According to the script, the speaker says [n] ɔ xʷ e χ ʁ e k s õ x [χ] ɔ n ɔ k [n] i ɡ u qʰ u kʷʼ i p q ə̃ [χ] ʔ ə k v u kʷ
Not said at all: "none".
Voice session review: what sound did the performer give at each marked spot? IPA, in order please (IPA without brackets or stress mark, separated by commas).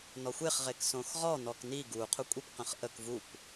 n, ʁ, n, χ